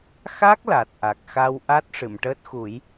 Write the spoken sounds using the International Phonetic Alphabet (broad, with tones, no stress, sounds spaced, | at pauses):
x a˦˥ k̚ l a˨˩ t̚ ʔ a˨˩ k̚ x a˧ w ʔ a˦˥ t̚ ʂ ɨ˨˩˨ m ʈ əː˦˥ t̚ x u˨˩˦ j